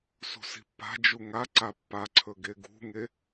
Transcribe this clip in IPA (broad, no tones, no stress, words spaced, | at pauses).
sṳsi̤pːa̤d͡ʒu ŋaǀa pːaǀʰɵ ɡeɡṳŋe